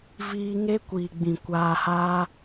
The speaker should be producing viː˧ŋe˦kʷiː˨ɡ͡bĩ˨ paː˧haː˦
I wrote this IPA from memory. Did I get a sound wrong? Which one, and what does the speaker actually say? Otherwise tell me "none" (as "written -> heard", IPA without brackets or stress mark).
p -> kʷ